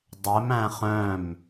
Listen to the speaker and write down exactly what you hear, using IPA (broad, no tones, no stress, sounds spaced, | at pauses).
dˤ ɛ m æ̃ χ œ̃ m